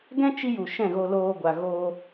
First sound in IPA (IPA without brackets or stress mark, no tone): ɡ